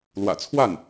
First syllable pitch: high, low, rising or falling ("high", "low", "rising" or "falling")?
low